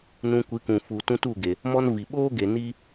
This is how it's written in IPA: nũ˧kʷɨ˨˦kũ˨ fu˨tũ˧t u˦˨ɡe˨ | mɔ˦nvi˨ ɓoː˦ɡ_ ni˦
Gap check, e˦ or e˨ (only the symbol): e˨